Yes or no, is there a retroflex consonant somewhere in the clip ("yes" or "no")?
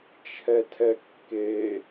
no